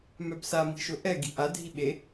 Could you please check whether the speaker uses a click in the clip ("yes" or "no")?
no